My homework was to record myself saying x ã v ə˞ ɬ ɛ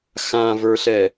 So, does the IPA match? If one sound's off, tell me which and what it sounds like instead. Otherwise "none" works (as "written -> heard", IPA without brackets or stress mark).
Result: none